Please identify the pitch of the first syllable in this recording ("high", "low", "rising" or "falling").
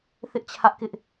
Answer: high